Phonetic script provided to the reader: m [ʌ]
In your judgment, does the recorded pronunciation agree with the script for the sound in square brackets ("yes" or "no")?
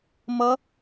yes